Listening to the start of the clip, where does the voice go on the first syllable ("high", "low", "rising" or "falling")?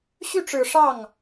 falling